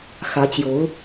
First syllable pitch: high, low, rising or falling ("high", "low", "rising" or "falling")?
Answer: rising